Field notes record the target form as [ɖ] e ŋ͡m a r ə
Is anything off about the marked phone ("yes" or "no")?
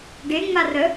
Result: no